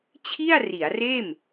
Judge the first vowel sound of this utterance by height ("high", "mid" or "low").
high